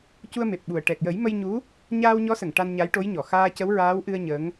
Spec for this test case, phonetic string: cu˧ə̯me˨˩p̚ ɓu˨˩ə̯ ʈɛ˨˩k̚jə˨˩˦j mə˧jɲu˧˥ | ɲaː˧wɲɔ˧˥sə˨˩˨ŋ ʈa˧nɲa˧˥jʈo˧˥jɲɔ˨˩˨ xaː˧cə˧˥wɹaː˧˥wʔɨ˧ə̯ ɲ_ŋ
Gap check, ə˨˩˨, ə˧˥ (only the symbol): ə˧˥